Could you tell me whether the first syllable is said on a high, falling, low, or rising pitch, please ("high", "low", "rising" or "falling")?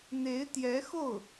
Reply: rising